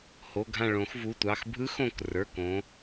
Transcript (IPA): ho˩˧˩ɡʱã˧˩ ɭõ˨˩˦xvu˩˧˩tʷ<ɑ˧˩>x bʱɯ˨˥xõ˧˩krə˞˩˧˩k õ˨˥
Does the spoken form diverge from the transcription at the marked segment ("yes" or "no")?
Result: yes